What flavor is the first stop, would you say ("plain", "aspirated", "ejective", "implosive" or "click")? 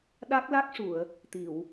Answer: implosive